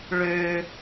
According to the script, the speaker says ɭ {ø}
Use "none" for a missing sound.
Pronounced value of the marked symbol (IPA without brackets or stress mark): ø